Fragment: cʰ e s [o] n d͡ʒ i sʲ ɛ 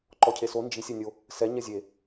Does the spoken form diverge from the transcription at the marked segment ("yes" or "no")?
no